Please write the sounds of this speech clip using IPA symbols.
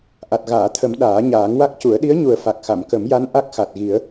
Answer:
ʔ a˨˩ t̚ ɣ aː˨˩˨ t̪ʰ ə˨˩˦ m ɗ aː˨˩˦ ɲ aː˨˩˦ ŋ w a˦˥ k̚ c u˨˩˦ ə̯ ɗ i˧˥ ə̯ ɲ u˨˩ ə̯ f a˨˩ k̚ x a˨˩˨ m k ə˨˩˦ m j a˧˥ n ʔ a˦˥ k̚ x a˨˩ t̚ ɣ i˨˩˦ ə̯

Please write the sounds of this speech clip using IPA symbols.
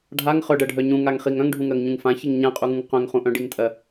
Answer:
ɖʱ a ŋ χ œ ɖ ɜ ɖʱ œ ɲ ũ ŋ a ŋ χ i ŋ œ̃ ŋ ɖʱ ũ ŋ ɜ ŋ ɲ ũ ŋ f ã ç i ŋ ɲ ã qʼ u ŋ ũ ŋ q œ̃ ŋ χ ũ ʔ œ̃ ɖ i ŋ tʼ ɜ

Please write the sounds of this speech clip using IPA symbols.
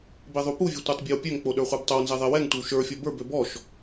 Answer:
b e ðˤ u p u vʲ ø tʷ ə˞ tˤ bʲ e w pʲ ø ŋ k͡p o ɗ ə˞ χʷ ɛ b tˤ o w n z e ðˤ e w ɛ ŋ tʷ e w ʃ ə˞ fʲ ɔ b ə˞ b ø b ɔ ʃ

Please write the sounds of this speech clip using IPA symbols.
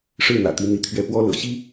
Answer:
ʂ ɻ̩˥˨ n̪ ä̰˨˩ t̪ i˨˦ n̪ i˨˦ t̪ʰ ɥ ɛ˥˨ p w ɔ˦ l ɤ̰˨˩ ɕ i˦

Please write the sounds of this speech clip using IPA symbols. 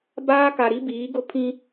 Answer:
b aː˦ k a˨ ɾ i˦ b iː˨˦ ɡ ʊ˦ pʰ ĩ˦

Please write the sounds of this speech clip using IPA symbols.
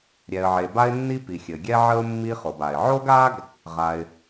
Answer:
ɾʲ ɛ˩ ə̯ ʕ e˩ b a˥ ɪ̯ nː i˥ p i˩ xʲ ɘ˩ ɡʲ ɛ˥ ʕ ə˥ ʊ̯ mː i˥ χ o˩ b a˩ ɪ̯ ʕ o˥ ɡ a˥ ɡ | ʁ a˩ ɪ̯

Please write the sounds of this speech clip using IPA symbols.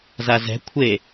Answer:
z a z ɛ̤ kʷʰ e

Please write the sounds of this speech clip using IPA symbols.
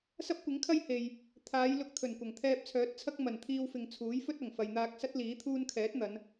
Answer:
s ɐ˥ p̚ kʷ ɪ˨˥ ŋ kʰ ɐ˥ j h e˨ j | t̪ʰ aː˨˧ j l ʊ˧ k̚ t̪ʰ ɵ˨˩ n kʷ ɐ˨˩ ŋ t̪ʰ ɛː˧ p̚ t͡sʰ œː˨˥ t̚ t͡sʰ ɐ˥ k̚ m ɐ˨˩ n t̪ʰ iː˧ w f ɪ˨ ŋ t͡sʰ uː˨˥ j f ɵ˥ t̚ ɐ˨˩ ŋ f ɐ˨ j n̪ aː˧ k̚ s ɐ˥ t̚ l iː˨˥ t̪ʰ uː˥ n kʰ ɛː˨˥ t̚ n̪ ɐ˨˧ n

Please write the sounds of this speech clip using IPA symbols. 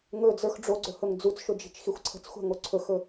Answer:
ŋ ɵ d͡z ə˞ x ɖ͡ʐ o ɡ͡ǀ ɵ h ɵ ŋ d͡z u t͡s ʃ ʊ d͡ʒ i̤ t͡ʃ x i xʷ ǀʰ ə̤ t͡s xʷ a̤ ŋ o ǀʰ ɵ x ɵ

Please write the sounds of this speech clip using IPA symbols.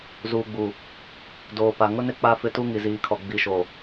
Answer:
z uː˨ ɡ͡b u˨ | d oː˨ p a˨ ŋ ʊ˦ n ɪ˦ k͡p a˦ f ɪ˦ t u˦ ŋ i˨ z iː˨ kʰ ɔ˨ ɡ͡b i˨ ʃ o˨

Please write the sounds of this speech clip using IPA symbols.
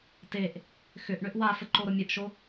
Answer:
t e ʔ | x ʏ ʔ ɳ ʏ ʔ w a f ə ǃ o ɾ ʊ mʲ ʊ ʔ ʃ o

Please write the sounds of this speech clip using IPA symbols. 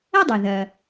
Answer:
ɐ˥ dˤ ʊ˩ ð ɐ˩

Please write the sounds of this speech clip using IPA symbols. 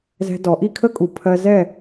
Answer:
z ɛ̤˧ d ɔ˩˧ ʔ i˥˨ kʰ ə˥ kʼ u˩ pʰ ɜ˧ z ɛ˥˨

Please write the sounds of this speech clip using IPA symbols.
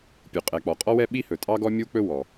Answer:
pʲ u˩ qʼ ɛ˩ k͡p ɔ˩ qʼ ɔ˥ w ɛ˥ ɓ i˥ h ɵ˩ tʼ ɑ˥ ɡ ɔ˥ mʲ u˥ k͡p ɵ˥ w ɔ˩

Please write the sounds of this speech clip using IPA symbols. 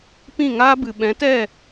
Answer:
p ĩ˦˨ ŋ aː˦ b ɨ˨ ɓ ɛ̃˨˦ t ɛ˦˨

